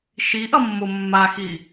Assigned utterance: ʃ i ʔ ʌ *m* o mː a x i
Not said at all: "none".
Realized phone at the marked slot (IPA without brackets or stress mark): mː